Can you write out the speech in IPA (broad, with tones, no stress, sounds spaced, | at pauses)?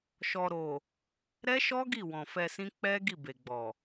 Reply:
ʃ ɔ˨ ɾ o˨ | ɾ ɛ˦ ʃ ɔ˦ ɡ i˦˨ w ɔ̃˨ f ɛ˧ s ĩ˦ k͡p ɛ˦ ɡ i˦˨ b e˨ ɡ͡b ɔ˨